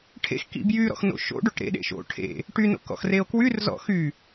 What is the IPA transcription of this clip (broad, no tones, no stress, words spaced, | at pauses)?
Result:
ʈʰḛx kḭbjyɾɔ̰x no̰ʃo̰ɖoʈ ɾḛɗḛ ʃo̰ ʈʰḛ | ʈyno̰ kɔ̰xreo̯kwyrzɔ̰ xy